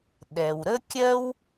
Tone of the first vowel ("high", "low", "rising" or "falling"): low